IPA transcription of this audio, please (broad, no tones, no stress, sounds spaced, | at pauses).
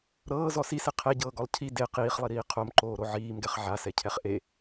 ɾ ɤː z ɔ s i s e qʰ ɛ ɟ ɤː ɡ ɔ lˠ cʰ i d e q iː χ lˠ i ɾ iː qʰ o m ǃ oː ɾ o ʕ iː m ɡ ɛ χ ʕ a s ɛ cʰ ɛ χ ʔ e